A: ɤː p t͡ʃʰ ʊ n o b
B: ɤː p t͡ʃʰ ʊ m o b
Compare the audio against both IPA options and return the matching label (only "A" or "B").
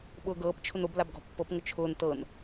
A